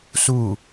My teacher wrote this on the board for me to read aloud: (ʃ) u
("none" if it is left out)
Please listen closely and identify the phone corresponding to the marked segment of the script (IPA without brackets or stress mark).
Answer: s